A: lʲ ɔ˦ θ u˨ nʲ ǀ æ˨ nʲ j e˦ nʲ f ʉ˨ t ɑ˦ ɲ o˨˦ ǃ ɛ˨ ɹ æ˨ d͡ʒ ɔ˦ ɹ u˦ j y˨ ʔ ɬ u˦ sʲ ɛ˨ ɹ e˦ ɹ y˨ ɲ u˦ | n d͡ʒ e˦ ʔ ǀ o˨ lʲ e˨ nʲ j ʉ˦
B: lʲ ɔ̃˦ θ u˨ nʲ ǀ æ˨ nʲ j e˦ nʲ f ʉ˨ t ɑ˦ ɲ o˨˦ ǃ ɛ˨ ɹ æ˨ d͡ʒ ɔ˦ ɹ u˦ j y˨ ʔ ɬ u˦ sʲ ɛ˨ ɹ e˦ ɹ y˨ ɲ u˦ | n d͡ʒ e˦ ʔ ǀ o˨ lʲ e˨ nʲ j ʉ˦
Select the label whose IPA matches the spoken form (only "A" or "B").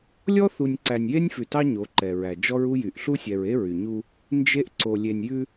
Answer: A